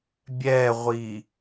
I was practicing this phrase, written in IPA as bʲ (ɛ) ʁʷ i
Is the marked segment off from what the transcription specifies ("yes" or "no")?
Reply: no